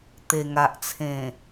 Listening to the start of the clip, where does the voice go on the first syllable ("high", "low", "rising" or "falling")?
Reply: low